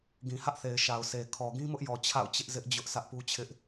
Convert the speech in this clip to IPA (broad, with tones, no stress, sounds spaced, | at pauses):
ɡ ĩ˨ h ä˦ ʔ θ e˨ ɪ̯ ʃ a˨ ʊ̯ s e˨ kʰ ɔ˨ ɡ ĩ˦ m ʊ˦ ʔ j ɔ˨ t͡ɕʰ a̰˦˨ ʊ̯ t͡ɕ ɪ˦ ʔ z ɪ˦ ʔ d͡ʑ ʊ˦ ʔ s ä˦ ʔ p u˦ t͡ɕʰ ɪ˦ ʔ